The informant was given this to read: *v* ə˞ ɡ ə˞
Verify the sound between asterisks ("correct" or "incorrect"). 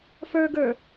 incorrect